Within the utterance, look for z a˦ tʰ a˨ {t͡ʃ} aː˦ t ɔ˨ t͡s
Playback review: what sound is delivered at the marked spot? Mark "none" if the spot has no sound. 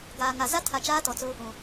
t͡ʃ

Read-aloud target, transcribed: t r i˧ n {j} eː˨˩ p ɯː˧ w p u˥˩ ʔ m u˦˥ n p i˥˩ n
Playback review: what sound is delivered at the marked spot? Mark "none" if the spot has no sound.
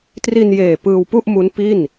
j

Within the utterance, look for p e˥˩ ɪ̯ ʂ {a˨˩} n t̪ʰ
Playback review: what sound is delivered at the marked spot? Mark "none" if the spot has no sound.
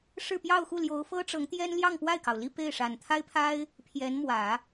a˨˩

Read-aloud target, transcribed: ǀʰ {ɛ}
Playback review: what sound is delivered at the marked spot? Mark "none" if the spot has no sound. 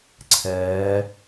ɛ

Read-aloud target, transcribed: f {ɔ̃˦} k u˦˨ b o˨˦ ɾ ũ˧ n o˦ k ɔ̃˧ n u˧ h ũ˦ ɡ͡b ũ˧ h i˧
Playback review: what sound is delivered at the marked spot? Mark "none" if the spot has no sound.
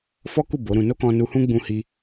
ɔ˦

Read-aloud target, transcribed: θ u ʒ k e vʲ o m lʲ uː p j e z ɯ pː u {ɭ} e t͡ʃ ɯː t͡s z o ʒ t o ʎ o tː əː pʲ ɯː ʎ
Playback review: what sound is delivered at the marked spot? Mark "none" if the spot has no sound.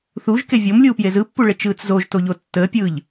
ɭ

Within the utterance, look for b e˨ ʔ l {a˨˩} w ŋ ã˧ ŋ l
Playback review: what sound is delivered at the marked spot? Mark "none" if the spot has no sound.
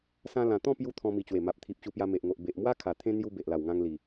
a˨˩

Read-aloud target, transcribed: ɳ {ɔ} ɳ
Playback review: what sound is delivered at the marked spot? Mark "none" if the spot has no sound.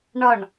ɔ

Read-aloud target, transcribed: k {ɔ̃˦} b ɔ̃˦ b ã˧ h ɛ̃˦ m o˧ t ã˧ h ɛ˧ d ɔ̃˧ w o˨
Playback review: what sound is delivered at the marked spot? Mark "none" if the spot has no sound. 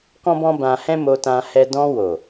ɔ̃˦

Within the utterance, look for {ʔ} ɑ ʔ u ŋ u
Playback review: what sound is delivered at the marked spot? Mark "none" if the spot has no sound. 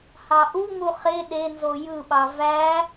h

